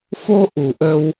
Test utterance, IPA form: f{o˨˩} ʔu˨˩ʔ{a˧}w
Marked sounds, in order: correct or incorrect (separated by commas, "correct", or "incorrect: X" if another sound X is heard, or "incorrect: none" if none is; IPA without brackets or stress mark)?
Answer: incorrect: o˧, incorrect: ə˧